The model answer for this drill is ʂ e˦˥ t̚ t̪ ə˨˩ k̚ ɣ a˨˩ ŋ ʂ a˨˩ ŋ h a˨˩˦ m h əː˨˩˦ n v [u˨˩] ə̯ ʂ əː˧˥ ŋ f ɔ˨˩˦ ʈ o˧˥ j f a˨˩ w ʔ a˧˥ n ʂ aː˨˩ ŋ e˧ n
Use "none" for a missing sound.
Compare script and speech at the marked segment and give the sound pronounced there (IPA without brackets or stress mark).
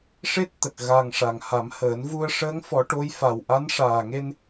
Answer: u˧